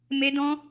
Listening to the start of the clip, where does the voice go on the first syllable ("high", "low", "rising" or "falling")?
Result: high